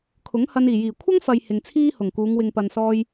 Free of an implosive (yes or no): yes